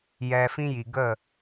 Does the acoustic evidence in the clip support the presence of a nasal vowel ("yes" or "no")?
yes